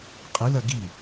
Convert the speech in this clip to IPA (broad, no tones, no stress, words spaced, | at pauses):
qʼɨlɐ ɡi